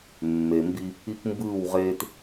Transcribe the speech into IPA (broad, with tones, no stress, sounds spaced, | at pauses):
mː e˨ m b i˦ | i˦ k m b ɯː˦˨ w ʁ eː˦ t